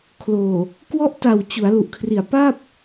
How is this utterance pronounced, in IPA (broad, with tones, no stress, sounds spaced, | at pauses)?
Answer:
kʰ l oː˨˩ | k w ɔ˦˥ ʔ t a˨˩ w t͡ɕ u˩˦ a̯ l u˨˩ ʔ kʰ r i˨˩ a̯ p a˥˩ p̚